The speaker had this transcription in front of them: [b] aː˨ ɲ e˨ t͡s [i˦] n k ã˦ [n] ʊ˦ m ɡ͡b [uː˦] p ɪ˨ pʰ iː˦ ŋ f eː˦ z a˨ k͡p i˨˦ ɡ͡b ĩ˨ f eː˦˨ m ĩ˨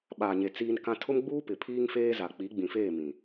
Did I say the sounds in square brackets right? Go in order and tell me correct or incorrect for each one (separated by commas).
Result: incorrect, incorrect, incorrect, correct